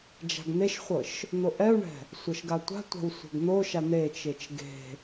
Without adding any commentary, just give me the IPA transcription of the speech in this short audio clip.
d͡ʒ a̤ ɡ n̪ e ʃ χʷ ɤ ʃ | n̪ o ʔ ɛ u̯ ɳ ɛ̤ | sʷ ɤ ʃ ɡ a tʷ a̤ tʷ a̤ w sʷ ɛ̤ ɡ n̪ o ʃ a n̪ e t͡ʃ e t͡ʃ ɡ e̤

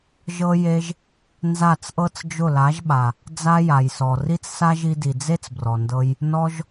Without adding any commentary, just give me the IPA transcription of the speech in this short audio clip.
ʒ ɤ˧ j e˧ ʒ | n z a˦˨ t͡s ʔ ɤ˦ t͡s d͡ʒ ʊ˦˨ l a˨˦ ʒ ɓ a˨ | d͡z a˦ j a˨ j s ɔ˨ r i˦ t͡s s a˦ ʒ i˧ d i˨ d͡z e˦ t͡s b r ɔ˨ n d ɤ˧ j | n ɔ˧ ʒ

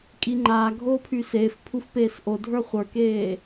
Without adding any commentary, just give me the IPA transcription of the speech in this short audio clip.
kʼ i ŋ͡ǃ aː ɡʱ oː pʰ y s eː f pʰ u f p eː s ʔ o dʱ ə˞ χʷ ə˞ k eː

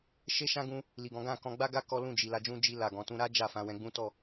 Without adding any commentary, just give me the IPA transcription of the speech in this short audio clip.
ʃ e˦ ʃ ã˦ ɡ ũ˧ | l i˨ ɡ ɔ̃˨˦ ɡ ã˦˨ k ɔ̃˧ ɡ͡b a˦ ɡ a˦ k ɔ˦ l ũ˦˨ d͡ʒ i˨ l a˧ d͡ʒ ũ˦ d͡ʒ i˧ l a˨ ɡ ɔ̃˨ t ũ˧ ɾ a˦ d͡ʒ a˦˨ f ã˧ w ɛ̃˧ ɡ͡b ũ˦ t ɔ˦˨

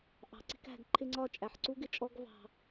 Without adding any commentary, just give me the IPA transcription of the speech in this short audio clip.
ʔ ɑ̤˨ ǀ i̤˧ k æ̤˨ ɡ ǃʰ ɪ˧ ŋ͡ǀ ɒ˧ t͡ʃʼ æ˨ ħ ǀ u˦ ɡ ɪ˦ t͡ʃʼ ɔ˦ ɡ v ɑ̤˧

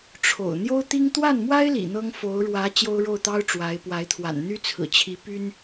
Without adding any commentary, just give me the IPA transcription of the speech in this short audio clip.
ʈ͡ʂʰ o̰˨˩ ʊ̯ n̪ j o˥ ʊ̯ t̪ i˥ ŋ t̪ w a˥˩ n m w a˥ ɪ̯ l ḭ˨˩ n̪ ɤ˥ ŋ f o˧˥ ʊ̯ ɻ w ä˧˥ t͡ɕ j o˥ ʊ̯ ɻ o˥˩ ʊ̯ t̪ ɑ˥ ʊ̯ ʈ͡ʂ w a˧˥ ɪ̯ p w a˧˥ ɪ̯ t̪ʰ w a̰˨˩ n n̪ y˥ t͡sʰ ɹ̩˨˩ t͡ɕʰ i˧˥ p y˥ n

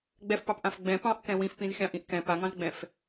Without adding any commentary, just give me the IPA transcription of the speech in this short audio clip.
ɡ͡b ɛ f p ɑ p ʔ ã f ɡ͡b ɛ̃ p ɑ̃ ʔ k ɛ̃ w ĩ f p ĩ z xʲ ɑ̃ ʔ ĩ ʔ k ɛ̃ p a ŋ ɑ̃ z ɡ͡b ɛ̃ f

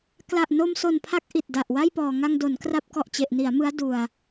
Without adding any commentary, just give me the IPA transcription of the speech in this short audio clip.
k l a˨˩ ʔ n o˧ m s o˨˩ n pʰ a˦˥ k̚ ʔ i˨˩ t̚ d a˨˩ ʔ w a˥˩ j p ɔː˨˩ ŋ a˧ ŋ d o˩˦ n k r a˦˥ p̚ k ɔ˨˩ ʔ t͡ɕ e˨˩ ʔ n i˩˦ a̯ m ɯ˦˥ a̯ d u˨˩ a̯

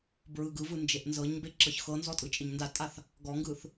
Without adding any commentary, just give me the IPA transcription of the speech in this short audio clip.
b ɹ ɯ ɡ ɯ v ɯ n d͡ʒ e ʔ n z ɤ ɲ b e ǁ ɤ ç x ɤ n z ɔ tʼ ɯ t͡ʃʼ ɪ ɲ n d a tʼ a θ | ɡ ɔ ŋ ɡ ɯ θ

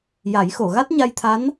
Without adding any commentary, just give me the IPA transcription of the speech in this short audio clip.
j a˨˩˦ j x o˨˩˨ ɣ a˦˥ t̚ ɲ a˧ j t̪ʰ a˧˥ n

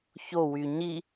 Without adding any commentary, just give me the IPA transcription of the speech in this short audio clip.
ç o w y ɲ i

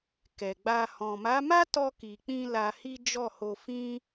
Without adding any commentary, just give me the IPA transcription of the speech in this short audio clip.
k ɛ˨ ɡ͡b a˧ h ɔ̃˨ m a˨˦ m a˦ t ɔ˧ k i˨ k͡p ĩ˧ l a˧ h i˦ d͡ʒ ɔ˦˨ h o˧ f ĩ˦

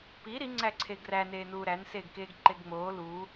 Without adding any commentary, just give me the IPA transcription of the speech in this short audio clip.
p i ɾ i ŋ͡ǀ æ ǀʰ e ɡ r æ n eː n uː ɾ æ n s eː ɡ k eː ɡ ǃ e ɡ ŋ͡m oː l uː

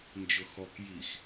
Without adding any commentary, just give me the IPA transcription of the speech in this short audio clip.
n d͡ʒ ʊ x ɔ k j i x

